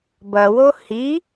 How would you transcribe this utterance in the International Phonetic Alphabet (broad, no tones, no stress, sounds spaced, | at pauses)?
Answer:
b ɐ w o h i